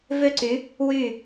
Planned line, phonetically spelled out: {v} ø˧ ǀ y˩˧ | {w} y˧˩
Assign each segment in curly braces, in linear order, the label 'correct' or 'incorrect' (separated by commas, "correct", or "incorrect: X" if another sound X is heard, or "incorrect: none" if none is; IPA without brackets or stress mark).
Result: correct, correct